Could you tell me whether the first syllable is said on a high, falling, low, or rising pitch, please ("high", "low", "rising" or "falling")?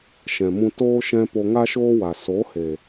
low